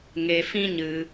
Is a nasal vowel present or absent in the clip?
present